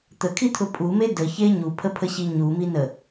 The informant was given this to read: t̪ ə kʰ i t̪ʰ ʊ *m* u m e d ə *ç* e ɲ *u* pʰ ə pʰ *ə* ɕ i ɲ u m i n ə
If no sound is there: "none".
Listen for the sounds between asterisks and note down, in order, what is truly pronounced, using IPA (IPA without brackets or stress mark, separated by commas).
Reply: pʼ, ç, u, ə